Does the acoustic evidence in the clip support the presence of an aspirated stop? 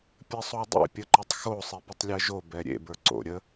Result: no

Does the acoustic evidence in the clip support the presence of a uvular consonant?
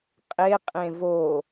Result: yes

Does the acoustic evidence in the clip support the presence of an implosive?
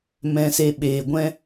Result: yes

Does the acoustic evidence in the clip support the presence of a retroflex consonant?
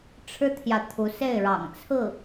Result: yes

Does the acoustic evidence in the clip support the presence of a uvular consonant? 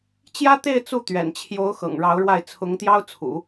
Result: no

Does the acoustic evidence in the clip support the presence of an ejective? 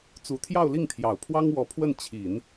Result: no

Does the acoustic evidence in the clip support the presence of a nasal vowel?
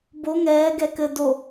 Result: no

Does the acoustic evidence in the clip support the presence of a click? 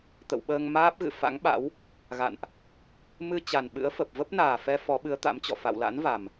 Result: no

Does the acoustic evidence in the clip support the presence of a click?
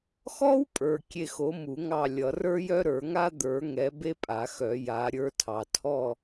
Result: no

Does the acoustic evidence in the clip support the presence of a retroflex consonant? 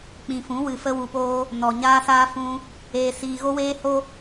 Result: no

